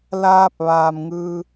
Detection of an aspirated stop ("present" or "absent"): absent